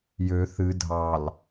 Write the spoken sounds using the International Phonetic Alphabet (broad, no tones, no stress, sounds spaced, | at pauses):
j ø θ ɨ dʱ ɑ l